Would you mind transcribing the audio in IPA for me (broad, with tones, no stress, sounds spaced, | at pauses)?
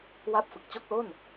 w a˥˩ p̚ f ɯ˨˩ k̚ t͡ɕ o˥˩ k̚ l o˥˩ n